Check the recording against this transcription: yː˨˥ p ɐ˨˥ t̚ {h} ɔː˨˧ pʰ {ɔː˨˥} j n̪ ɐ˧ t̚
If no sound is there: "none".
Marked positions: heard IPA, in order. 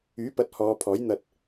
h, ɔː˨˥

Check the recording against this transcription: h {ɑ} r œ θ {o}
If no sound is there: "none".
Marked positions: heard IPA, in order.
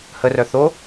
ə, o

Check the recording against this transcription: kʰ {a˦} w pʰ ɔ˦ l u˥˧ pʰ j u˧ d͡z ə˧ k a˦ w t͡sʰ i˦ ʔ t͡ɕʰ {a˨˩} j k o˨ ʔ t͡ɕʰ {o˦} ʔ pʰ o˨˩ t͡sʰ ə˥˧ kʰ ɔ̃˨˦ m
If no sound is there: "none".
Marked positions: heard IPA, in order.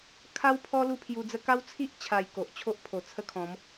a˦, a˨˩, o˦

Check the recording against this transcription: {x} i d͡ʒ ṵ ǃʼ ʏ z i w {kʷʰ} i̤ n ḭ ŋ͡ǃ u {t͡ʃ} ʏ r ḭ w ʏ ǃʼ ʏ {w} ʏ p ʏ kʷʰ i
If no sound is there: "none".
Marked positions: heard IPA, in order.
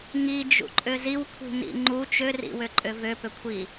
ŋ, kʷʰ, t͡ʃ, v

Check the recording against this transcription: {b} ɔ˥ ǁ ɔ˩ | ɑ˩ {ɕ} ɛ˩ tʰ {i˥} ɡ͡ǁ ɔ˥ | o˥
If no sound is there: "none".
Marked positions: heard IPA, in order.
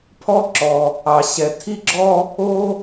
pʰ, ɕ, i˥

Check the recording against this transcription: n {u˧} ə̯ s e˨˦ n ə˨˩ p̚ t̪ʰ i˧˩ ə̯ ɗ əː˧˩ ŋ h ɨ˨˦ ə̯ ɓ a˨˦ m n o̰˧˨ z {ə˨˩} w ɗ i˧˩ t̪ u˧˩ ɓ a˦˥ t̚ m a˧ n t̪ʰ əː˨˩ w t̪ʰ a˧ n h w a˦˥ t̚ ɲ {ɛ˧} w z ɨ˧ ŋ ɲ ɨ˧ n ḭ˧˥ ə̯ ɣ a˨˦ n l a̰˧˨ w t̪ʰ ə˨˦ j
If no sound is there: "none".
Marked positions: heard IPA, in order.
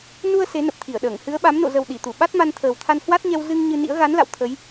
u˧, ə˨˩, ɛ˧

